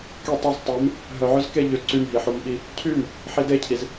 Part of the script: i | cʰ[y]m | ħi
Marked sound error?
no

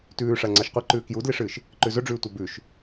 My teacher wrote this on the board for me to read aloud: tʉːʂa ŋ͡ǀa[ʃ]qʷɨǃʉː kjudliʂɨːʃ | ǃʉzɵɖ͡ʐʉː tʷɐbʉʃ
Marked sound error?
no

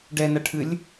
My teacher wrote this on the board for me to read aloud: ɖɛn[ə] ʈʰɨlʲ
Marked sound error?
yes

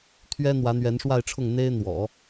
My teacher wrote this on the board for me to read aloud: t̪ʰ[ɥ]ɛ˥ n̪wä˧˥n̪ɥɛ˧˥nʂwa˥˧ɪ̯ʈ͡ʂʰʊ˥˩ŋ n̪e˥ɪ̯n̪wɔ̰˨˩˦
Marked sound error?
no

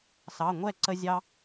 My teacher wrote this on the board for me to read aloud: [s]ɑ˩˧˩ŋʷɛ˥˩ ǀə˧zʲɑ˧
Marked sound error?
no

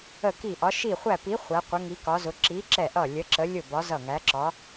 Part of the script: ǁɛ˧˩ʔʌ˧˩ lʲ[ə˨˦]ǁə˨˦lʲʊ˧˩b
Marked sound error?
no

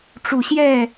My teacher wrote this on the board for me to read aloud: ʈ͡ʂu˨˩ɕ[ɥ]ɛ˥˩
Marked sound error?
yes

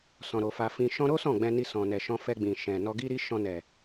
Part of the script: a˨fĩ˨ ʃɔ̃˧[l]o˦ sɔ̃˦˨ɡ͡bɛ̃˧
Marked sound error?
yes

